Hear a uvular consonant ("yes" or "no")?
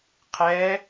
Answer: yes